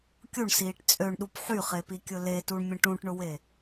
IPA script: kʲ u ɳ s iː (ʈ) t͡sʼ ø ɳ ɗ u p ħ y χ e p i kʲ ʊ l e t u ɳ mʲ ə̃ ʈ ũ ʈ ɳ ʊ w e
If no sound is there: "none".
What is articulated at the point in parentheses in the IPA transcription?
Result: ʈ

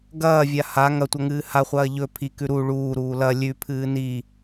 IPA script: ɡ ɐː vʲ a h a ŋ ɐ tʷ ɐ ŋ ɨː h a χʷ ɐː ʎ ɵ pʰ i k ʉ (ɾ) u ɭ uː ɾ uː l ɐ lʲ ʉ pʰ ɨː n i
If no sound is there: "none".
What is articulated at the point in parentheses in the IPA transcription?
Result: ɾ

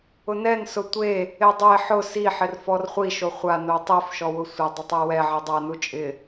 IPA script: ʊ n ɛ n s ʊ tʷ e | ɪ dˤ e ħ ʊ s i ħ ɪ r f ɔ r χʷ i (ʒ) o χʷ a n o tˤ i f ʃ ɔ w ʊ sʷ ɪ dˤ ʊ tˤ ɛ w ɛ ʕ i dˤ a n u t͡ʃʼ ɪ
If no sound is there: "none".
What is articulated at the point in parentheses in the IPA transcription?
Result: ʃ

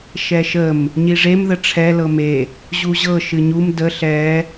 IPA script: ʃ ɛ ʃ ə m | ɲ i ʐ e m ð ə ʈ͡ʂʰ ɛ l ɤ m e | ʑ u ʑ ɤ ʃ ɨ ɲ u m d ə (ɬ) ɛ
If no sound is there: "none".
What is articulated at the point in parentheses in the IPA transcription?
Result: ɬ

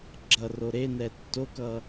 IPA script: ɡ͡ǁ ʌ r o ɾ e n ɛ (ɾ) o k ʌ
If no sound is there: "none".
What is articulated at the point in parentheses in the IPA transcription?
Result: tː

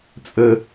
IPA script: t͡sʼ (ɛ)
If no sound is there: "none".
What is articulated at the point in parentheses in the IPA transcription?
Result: ə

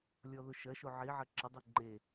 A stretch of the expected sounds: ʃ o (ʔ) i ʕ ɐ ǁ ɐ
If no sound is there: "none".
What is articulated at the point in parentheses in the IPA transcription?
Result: ʕ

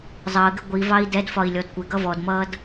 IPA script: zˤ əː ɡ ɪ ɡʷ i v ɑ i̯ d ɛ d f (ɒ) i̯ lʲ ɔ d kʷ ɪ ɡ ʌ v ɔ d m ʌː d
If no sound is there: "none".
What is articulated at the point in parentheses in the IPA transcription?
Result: ɒ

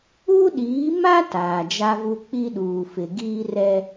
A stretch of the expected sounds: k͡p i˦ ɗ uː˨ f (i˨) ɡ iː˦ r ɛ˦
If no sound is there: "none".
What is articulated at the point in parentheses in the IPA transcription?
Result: ɪ˨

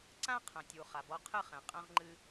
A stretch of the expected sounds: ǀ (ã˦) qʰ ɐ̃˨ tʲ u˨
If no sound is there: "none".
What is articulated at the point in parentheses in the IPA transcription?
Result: ã˦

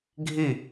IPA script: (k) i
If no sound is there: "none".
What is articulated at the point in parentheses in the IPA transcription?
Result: ɡʱ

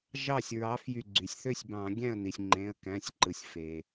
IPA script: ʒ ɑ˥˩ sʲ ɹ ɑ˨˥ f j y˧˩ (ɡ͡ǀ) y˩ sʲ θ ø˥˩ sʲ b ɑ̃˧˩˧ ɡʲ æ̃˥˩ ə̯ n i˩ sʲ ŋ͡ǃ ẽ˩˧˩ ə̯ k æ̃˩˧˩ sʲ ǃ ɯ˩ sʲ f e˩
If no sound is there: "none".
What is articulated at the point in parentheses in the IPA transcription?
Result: ɡ͡ǀ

